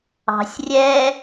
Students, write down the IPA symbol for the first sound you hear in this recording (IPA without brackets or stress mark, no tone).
ɑ̤